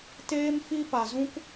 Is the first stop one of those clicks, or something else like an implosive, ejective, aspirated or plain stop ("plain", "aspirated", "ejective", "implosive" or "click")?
plain